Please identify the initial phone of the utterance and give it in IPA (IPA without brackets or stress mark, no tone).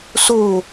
s